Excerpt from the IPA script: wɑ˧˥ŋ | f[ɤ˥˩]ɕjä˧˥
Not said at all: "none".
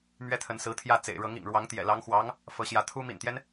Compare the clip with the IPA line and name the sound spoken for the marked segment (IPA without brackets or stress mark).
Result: ɤ˧˥